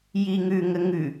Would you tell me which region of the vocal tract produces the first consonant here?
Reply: palate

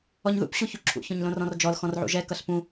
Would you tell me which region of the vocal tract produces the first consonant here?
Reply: palate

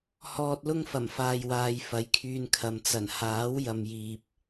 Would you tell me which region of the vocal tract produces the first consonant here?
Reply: throat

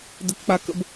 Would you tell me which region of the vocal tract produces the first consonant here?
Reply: tongue tip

